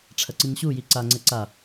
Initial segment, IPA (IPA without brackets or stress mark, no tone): ʈ͡ʂʰ